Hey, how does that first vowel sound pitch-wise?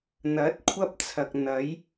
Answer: rising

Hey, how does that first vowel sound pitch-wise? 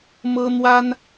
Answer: high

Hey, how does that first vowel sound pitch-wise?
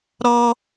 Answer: high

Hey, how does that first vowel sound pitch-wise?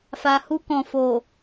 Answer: low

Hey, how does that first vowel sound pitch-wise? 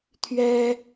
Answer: high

